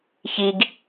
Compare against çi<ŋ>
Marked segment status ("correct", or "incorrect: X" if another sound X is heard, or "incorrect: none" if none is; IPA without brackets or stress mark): incorrect: ɡ